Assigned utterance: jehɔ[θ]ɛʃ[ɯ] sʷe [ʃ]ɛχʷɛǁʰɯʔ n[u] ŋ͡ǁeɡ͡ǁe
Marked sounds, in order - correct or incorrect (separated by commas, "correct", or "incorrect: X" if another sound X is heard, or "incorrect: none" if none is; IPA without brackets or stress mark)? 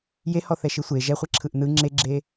correct, correct, incorrect: ʒ, incorrect: ɯ